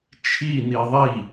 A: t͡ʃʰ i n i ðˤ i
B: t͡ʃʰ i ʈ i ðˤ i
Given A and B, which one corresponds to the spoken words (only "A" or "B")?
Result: A